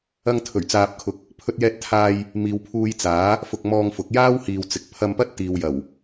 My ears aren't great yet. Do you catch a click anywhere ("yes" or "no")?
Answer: no